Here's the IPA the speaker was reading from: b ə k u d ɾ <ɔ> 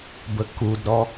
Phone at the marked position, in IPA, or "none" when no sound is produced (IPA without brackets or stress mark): ɔ